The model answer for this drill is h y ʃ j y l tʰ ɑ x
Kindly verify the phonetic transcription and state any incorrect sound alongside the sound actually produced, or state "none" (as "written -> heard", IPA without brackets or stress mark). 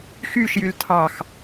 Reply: h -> x